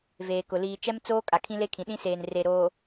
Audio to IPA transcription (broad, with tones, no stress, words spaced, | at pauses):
veː˨kʊ˨ liː˨t͡ʃɛ˦mt͡soː˦ kʼa˨kʰĩ˦le˦kʰĩ˨ ɗĩ˦seː˨n re˨ɾoː˨